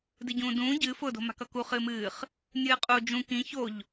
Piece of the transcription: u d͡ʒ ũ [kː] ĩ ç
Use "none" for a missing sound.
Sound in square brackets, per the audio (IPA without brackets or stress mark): k